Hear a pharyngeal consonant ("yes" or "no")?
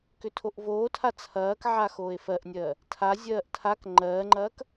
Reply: yes